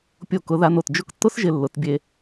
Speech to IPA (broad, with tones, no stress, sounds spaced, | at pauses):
pʲ o˧˩ k ʊ˩˧ ð a˧ n o˧˩ t d͡ʒ ʊ˥˧ k tː ʊ˦˥ s ʒ ɪ˧ lː ʊ˩˧ t bʲ e˧